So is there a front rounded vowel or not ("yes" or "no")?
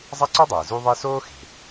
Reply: yes